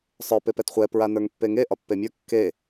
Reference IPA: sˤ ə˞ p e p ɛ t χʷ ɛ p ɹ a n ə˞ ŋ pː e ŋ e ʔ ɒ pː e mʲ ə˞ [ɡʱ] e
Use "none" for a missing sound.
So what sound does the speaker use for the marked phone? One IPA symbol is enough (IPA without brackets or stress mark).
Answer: kː